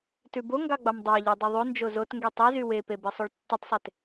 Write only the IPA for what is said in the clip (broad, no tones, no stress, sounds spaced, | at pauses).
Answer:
t ʉ b o ŋ ɡ ɑ ɡ͡b ɑ m dˤ ɑ ʎ o dˤ e ðˤ o n d͡ʒ o z o t ŋ ɡ y tˤ e z y w e p e b e sˤ o ɭ tː i tˤ sˤ e t